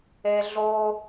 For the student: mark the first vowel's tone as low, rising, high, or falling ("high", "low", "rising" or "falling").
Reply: high